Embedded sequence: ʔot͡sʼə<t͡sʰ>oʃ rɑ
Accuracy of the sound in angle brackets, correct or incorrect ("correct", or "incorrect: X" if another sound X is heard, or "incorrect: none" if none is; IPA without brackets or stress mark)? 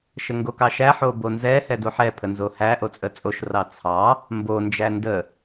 incorrect: t͡sʼ